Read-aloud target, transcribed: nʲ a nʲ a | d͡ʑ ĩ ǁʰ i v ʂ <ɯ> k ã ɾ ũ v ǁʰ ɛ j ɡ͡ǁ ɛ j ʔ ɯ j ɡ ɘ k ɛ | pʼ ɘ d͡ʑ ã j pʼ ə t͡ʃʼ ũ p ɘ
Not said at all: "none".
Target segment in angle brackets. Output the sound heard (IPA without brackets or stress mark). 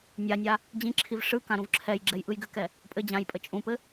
ɯ